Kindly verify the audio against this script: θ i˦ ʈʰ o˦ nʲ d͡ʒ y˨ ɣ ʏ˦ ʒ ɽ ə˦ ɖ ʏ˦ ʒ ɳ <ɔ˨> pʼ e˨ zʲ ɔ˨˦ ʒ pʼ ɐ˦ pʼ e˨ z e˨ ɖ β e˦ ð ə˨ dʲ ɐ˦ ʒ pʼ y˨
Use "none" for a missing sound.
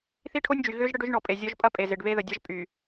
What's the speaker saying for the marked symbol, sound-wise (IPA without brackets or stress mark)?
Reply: ɔ˨